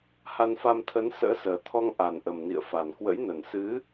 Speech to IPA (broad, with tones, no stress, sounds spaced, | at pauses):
h a˧ n f a˧ m t̪ʰ ə˨˦ n s ə̰ː˧˥ s əː˨˩ t̪ʰ ɔ˧ ŋ ʔ a˨˩ n ʔ ə˨˩ m n ḭ˧˨ ə̯ f a˨˩ n k w ə̰˧˥ j n ə˨˩ n s ɨ˨˦